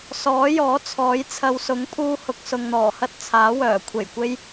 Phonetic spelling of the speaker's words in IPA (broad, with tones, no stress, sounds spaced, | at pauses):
s ɔː˨˥ j ɔː˨˥ t͡sʰ ɔː˨˥ j t͡sʰ ɐ˨ w s ʊ˨˥ ŋ pʰ uː˧ h ʊ˨ k̚ s ʊ˨ ŋ n̪ ɔː˨˩ h ɐ˥ t̚ t͡sʰ aː˨˥ w œː˨˩ kʷʰ e˨˩ j kʷ e˥ j